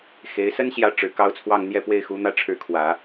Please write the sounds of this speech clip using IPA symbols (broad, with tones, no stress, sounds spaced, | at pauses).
x e˧˥ ɪ̯ s ə˥ n ɕ j ä˥˩ ʈ͡ʂ ɻ̩˨˩ k ɑ˥ ʊ̯ t͡sʰ w ɑ˥˧ ŋ n̪ j ɛ˥˧ p w e˥˩ ɪ̯ x u˧˥ n̪ ä˥ ʈ͡ʂʰ ɻ̩˧˥ kʰ w ä˨˩˦